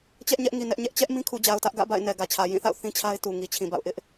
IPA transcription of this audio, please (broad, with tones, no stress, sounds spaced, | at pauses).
t͡ɕ ɛ˦ ʔ ɲ ɛ˦ ʔ ŋ i˨ n ɛ˦ ʔ ɲ ɛ˦ ʔ t͡ɕ ɛ˦ ʔ m ĩ˦ kʰ u˨ d͡ʑ a˨ ʊ̯ t ä˦ ʔ ɡ ä̰˦˨ b a̰˦˨ ɪ̯ n ɛ˨ ɡ ä˨ t͡ɕʰ ä˨ j ĩ˦˨ θ a̰˦˨ ʊ̯ θ ĩ˦ t͡ɕʰ a˦ ɪ̯ t u˨ ŋ i˨ t͡ɕʰ ĩ˨ b a̰˦˨ ʊ̯ ʔ ɪ˦ ʔ